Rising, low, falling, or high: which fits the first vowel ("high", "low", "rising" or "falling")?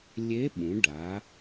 rising